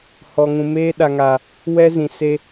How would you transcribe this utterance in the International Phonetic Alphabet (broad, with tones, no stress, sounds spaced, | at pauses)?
h ɔ˨ ŋ ũ˨ m eː˦ ɗ a˨ ŋ a˨ | w ɛ˦ z ĩ˨ s e˦